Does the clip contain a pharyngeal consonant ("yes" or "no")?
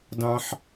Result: yes